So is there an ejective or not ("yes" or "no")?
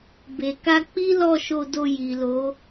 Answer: no